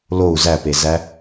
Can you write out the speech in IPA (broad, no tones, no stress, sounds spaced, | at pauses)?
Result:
l o u̯ z æ p e z æ